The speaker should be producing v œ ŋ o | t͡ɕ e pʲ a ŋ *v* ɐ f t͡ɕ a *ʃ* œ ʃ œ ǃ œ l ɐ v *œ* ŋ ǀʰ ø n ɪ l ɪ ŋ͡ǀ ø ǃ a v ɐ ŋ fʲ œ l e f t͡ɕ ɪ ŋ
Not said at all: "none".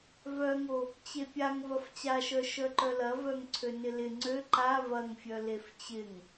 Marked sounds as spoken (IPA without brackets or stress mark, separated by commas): v, ʃ, œ